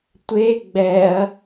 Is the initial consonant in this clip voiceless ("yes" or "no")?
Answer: yes